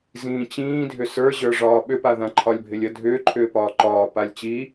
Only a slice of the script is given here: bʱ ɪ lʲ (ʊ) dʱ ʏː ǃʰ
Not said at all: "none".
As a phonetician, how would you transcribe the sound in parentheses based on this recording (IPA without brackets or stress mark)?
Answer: ə